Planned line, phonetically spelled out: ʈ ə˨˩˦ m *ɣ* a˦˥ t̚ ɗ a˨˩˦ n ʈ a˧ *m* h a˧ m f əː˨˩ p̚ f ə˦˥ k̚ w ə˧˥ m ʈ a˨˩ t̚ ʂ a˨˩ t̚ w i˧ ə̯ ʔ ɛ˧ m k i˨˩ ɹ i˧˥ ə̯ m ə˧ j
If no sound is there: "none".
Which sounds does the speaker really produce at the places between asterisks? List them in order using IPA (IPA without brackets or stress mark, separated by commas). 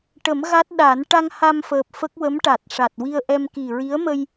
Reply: ɣ, ŋ